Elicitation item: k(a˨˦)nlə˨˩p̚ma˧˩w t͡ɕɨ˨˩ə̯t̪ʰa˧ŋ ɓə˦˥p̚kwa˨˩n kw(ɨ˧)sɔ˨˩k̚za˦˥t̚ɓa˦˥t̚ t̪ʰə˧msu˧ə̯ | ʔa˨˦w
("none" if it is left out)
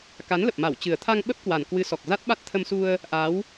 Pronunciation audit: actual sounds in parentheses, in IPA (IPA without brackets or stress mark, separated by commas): a˨˦, ɨ˨˦